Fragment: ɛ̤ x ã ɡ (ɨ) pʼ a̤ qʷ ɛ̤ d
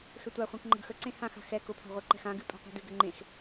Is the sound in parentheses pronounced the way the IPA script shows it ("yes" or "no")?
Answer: yes